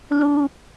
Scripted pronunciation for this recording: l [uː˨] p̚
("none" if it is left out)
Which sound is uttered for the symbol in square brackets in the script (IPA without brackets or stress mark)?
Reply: uː˨